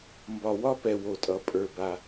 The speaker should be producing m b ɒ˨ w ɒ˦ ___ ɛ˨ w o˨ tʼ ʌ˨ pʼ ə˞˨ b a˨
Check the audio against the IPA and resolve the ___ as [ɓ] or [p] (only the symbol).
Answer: p